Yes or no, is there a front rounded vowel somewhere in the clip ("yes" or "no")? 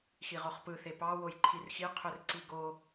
yes